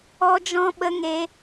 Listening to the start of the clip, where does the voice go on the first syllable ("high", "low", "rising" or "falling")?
high